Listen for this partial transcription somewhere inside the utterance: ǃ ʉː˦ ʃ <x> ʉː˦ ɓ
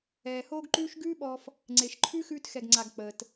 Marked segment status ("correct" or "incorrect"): incorrect